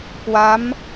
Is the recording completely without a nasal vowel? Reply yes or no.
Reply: yes